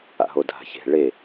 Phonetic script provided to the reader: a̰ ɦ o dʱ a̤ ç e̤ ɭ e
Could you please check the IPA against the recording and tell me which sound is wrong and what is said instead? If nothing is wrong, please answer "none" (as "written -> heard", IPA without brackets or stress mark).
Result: none